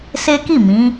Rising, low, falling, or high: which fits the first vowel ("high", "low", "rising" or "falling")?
high